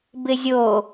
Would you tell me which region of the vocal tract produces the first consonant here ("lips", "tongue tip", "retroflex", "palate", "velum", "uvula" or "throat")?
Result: lips